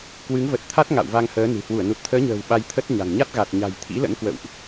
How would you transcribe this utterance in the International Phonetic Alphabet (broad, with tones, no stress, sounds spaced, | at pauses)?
k w ɨ˨˦ ŋ v ə˨˩ t̚ t̪ʰ a˦˥ t̚ ŋ a̰˧˨ w v a˧ ŋ h əː˨˦ n ɨ̤˨˩ h w u˧˩ ə̯ n u˨˩ t̚ t̪ʰ əː˨˦ ɲ ə̤ː˨˩ w ɓ a˧ j t̪ʰ ə˦˥ t̚ ɲ a̤˨˩ ŋ ɲ a˦˥ t̚ ɣ a˨˩ t̚ ɲ a̤˨˩ j t̪ʰ ḭ˧˥ l ə̰˧˥ n k w ə̰˧˨ w ʔ